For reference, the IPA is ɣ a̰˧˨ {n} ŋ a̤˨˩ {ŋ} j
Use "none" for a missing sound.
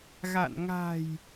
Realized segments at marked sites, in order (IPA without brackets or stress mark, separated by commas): n, none